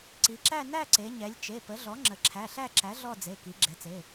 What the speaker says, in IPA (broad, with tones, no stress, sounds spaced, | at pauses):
ǀ i˩˧ ǁ æ˥˧ n æ˥˧ ǀ e˩˧ ɲ ɛ˩˧ lʲ t͡ʃ e˩˧˩ p ə˩˥ ɮ ɔ˩˥ ŋ͡ǁ ə˩˧ ǁʰ æ˩˧˩ ɬ æ˥˧ ǁ æ˩˥ ɮ ɔ˥˧ d͡z e˩˧˩ k i˩˧ ɡ͡ǁ ɛ˩˧ t͡s e˩˧˩